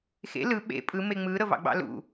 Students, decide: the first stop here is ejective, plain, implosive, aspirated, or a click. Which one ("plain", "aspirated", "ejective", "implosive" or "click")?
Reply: implosive